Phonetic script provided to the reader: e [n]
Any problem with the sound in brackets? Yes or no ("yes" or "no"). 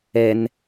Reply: no